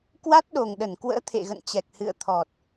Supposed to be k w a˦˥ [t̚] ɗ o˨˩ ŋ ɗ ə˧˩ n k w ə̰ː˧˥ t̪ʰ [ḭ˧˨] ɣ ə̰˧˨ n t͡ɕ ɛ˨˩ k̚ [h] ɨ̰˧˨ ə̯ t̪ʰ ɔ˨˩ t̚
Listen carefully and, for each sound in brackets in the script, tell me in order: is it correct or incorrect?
correct, incorrect: ḛ˧˨, correct

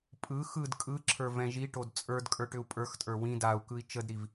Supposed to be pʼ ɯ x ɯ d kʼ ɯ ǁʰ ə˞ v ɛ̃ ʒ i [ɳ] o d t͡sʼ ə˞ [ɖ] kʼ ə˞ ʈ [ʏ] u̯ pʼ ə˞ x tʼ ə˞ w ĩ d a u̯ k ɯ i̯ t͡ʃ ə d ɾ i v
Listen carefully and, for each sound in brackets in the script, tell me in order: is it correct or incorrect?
incorrect: ʈ, incorrect: d, correct

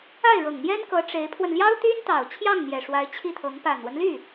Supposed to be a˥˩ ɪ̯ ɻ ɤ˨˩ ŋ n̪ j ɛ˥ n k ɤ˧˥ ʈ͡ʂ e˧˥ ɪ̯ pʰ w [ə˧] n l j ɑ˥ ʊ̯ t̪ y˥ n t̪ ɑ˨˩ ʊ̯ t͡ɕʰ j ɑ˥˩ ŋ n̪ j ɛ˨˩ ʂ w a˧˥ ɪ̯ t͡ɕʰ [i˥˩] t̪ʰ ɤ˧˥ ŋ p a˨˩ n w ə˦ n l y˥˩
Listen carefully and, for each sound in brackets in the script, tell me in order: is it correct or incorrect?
correct, correct

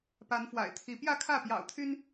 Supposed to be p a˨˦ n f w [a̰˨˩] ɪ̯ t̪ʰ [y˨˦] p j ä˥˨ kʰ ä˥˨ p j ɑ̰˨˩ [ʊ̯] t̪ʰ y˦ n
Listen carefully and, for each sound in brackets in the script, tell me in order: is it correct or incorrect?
correct, incorrect: i˨˦, correct

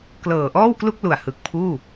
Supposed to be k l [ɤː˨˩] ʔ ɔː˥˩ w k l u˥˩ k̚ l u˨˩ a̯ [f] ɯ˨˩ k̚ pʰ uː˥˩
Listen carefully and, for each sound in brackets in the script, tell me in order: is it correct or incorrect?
correct, incorrect: h

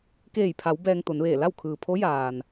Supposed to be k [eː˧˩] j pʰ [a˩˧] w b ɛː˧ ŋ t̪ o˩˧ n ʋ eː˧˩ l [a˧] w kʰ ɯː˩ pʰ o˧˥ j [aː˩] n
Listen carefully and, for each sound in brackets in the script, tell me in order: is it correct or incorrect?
correct, correct, incorrect: a˥˨, correct

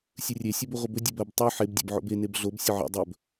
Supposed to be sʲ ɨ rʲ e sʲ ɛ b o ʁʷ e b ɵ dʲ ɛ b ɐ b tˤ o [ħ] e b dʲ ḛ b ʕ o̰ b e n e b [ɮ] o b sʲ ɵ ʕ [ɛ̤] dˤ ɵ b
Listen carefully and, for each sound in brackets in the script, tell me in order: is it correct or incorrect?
correct, correct, incorrect: ɛ̰

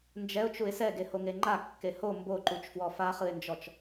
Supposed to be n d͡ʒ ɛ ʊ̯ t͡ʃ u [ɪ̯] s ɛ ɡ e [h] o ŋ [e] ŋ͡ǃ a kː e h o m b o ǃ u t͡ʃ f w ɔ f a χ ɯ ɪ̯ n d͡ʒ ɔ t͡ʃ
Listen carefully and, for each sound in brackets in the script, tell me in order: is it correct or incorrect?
correct, correct, correct

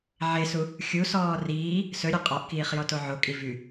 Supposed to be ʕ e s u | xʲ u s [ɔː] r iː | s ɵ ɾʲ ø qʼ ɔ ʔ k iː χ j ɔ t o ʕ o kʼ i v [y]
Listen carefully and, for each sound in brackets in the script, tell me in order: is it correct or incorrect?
correct, correct

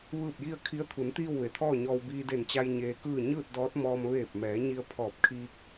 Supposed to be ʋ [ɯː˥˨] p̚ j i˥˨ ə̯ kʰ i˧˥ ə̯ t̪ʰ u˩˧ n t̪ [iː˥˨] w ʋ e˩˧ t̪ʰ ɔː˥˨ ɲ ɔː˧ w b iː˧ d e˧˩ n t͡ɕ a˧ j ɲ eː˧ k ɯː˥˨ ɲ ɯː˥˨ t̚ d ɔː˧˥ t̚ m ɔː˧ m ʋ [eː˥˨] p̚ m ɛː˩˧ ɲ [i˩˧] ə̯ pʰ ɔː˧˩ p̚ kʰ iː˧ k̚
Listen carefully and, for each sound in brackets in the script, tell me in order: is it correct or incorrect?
correct, correct, incorrect: eː˧˩, incorrect: i˧

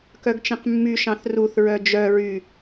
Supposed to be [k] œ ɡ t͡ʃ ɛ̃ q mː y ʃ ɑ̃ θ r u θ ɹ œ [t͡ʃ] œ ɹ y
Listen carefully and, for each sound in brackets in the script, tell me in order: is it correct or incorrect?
correct, incorrect: d͡ʒ

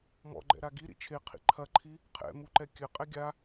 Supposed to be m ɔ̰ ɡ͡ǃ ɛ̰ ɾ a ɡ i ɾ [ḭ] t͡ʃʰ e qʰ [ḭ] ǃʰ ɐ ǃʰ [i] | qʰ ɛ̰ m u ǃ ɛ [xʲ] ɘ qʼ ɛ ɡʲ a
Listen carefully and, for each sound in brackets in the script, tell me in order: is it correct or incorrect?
correct, correct, correct, incorrect: kʲ

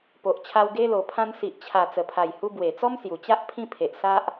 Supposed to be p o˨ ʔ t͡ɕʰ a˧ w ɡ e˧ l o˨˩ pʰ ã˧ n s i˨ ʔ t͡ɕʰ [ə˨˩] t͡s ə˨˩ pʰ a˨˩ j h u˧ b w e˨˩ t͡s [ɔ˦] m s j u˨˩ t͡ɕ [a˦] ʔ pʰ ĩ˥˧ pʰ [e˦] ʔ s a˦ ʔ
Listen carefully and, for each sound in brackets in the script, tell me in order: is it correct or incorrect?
incorrect: a˨˩, correct, correct, incorrect: e˨

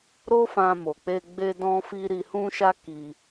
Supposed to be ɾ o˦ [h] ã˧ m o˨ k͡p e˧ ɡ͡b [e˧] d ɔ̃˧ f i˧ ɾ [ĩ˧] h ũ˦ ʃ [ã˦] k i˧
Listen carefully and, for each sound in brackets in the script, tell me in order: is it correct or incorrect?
incorrect: f, correct, incorrect: i˧, incorrect: a˦

